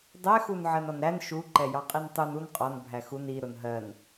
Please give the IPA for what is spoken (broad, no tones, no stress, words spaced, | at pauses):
dˤɛxun ʕɜnɒnɾæn ʃuǃɛ jɑqʼintˤun un qʼɒn bʱæxun i ɾʊnɦɜn